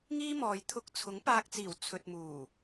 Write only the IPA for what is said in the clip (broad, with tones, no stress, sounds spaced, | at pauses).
ŋ iː˥ m ɔː˨ j t̪ʰ ʊ˧ k̚ t͡sʰ ʊ˨˥ ŋ p aː˧ k̚ t͡s iː˨˩ w t͡sʰ ɵ˨ t̚ m uː˨˩